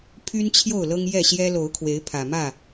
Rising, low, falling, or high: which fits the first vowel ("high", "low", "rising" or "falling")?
high